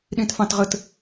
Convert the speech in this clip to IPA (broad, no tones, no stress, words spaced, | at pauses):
ɗĩtfɑ̃tʁət